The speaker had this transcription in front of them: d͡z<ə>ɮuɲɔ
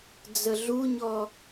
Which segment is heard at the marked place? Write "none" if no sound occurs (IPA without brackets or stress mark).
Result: ə